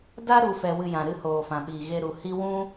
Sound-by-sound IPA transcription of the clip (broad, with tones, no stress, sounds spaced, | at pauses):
d a˦ ɾ u˧ f ɛ˧ w ɨ˧ j ã˨ ɾ ɨ˦ h oː˨ f ã˨ ɓ iː˨ ɣ e˧ ɾ u˨ h i˦ w ũ˦